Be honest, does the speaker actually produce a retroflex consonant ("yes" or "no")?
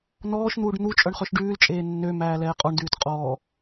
yes